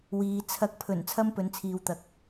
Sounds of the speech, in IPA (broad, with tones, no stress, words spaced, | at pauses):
wiː˨ t͡sʰɐ˨k̚pʰɵ˨˩n t͡sʰɐ˥mpɵ˨nt͡sʰiː˨wt̪ɐ˨k̚